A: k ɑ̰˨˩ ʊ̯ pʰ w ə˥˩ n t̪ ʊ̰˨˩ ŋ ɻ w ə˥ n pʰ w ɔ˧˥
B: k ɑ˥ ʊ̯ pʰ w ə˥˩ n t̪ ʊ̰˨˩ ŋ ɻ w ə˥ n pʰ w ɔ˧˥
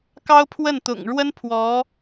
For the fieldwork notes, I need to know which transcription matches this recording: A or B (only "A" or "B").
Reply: B